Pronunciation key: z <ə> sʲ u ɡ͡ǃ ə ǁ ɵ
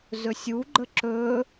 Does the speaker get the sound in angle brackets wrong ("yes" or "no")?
yes